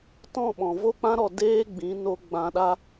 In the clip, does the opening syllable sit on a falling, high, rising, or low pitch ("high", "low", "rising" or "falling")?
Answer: falling